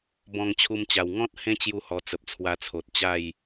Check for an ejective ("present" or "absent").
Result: absent